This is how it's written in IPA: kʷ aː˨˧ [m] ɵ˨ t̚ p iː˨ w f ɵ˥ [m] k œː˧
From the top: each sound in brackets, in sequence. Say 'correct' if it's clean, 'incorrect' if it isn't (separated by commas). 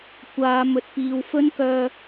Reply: correct, incorrect